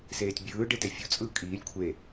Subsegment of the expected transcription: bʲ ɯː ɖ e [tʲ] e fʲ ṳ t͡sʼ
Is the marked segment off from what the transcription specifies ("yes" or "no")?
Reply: yes